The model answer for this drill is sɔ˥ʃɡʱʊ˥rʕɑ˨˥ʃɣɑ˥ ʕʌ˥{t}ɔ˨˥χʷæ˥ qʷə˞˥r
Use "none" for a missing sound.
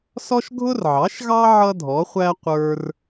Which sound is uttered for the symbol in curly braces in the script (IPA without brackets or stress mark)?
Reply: dʱ